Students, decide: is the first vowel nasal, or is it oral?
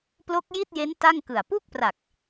oral